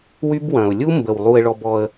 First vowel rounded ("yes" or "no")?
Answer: yes